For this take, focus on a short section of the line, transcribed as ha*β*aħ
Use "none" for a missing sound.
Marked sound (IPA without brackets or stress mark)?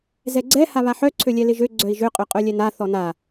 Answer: β